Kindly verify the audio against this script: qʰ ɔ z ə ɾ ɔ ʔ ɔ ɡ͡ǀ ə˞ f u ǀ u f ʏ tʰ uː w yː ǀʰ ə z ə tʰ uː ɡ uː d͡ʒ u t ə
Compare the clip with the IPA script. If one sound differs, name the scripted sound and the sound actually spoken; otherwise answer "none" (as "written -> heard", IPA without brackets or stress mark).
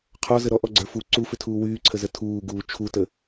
d͡ʒ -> t͡ʃʰ